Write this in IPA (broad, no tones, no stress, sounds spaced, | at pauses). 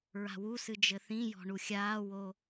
ɹ a̤ w u s ɨ d͡ʒ ɘ θ ĩ j ɔ̤ ɳ u xʲ aː w o